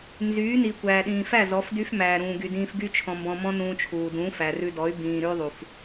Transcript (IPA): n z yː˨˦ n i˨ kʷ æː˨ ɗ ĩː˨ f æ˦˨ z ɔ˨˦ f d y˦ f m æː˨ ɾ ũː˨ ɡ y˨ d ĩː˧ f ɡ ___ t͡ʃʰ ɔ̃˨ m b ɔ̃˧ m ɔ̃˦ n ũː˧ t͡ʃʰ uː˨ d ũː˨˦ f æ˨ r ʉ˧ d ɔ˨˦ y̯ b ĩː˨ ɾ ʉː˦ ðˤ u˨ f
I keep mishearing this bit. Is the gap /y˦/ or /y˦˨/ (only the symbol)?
y˦